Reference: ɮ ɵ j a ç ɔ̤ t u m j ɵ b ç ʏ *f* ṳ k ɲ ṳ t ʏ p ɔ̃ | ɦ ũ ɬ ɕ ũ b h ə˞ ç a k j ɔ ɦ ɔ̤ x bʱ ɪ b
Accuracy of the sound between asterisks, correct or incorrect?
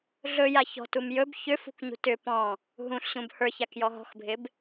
correct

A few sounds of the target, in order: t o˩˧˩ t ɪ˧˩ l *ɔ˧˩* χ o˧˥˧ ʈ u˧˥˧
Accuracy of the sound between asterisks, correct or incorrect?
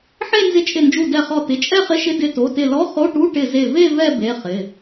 incorrect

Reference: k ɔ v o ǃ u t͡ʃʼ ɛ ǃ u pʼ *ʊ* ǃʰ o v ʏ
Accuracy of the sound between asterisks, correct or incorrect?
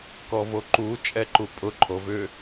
correct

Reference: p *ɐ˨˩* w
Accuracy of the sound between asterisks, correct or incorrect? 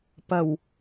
correct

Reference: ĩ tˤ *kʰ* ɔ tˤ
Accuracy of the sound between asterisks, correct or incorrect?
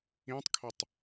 correct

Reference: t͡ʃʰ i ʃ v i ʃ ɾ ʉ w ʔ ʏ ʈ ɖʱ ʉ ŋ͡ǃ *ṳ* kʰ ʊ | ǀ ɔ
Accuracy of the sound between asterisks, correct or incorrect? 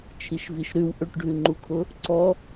incorrect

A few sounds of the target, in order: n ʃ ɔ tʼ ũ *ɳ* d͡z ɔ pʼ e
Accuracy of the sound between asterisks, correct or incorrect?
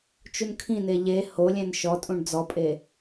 correct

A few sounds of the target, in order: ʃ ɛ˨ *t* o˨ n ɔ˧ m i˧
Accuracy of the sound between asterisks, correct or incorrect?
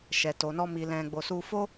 correct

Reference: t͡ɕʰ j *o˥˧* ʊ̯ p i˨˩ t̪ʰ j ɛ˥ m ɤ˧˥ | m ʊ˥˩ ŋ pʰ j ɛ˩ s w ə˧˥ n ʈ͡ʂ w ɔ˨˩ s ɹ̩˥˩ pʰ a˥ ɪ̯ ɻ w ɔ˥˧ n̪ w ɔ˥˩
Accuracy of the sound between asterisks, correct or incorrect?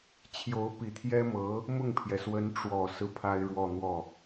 incorrect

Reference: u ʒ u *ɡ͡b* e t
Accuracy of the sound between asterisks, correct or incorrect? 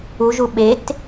incorrect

